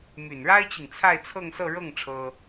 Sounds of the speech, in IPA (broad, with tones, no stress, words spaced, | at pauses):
my˨˩nɻa˥ɪ̯t͡ɕi˨ŋ t͡sʰa˥˧ɪ̯t͡sʰɤ˥˧ŋsɤ˥˧ ɻɤ˥˩ŋ ʈ͡ʂʰɤ˥